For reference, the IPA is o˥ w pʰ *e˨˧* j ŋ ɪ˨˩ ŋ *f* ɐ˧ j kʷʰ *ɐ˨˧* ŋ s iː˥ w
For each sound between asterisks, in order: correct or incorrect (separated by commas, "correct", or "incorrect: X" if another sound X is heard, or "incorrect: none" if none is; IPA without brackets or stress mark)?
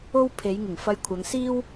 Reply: correct, correct, correct